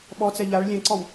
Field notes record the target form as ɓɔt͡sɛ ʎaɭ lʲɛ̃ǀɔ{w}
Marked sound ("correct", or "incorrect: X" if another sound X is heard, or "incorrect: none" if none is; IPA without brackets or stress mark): correct